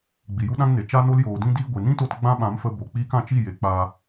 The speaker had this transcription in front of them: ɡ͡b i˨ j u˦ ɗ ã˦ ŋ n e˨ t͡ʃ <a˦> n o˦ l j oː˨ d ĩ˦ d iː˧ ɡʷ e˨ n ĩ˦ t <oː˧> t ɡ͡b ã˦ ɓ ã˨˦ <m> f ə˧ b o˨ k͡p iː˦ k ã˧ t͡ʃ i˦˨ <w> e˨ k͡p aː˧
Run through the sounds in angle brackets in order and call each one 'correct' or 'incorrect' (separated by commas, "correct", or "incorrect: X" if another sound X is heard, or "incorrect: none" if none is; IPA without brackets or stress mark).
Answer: correct, incorrect: o˧, correct, incorrect: j